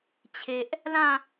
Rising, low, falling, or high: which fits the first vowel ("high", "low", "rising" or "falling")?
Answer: low